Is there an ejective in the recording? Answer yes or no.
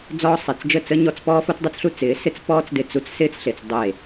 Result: no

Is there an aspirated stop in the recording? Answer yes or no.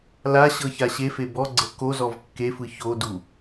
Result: no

